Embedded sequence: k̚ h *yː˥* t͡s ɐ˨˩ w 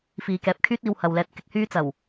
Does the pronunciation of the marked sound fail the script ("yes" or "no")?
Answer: no